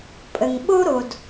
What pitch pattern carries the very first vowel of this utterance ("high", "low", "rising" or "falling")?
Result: low